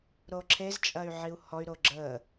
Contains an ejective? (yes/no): yes